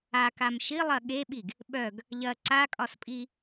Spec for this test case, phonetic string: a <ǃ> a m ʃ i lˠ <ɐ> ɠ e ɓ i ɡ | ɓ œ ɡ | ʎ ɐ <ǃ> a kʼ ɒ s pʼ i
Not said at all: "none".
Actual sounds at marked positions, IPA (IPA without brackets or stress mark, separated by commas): k, ɐ, ǀ